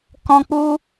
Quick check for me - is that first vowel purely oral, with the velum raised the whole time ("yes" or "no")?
no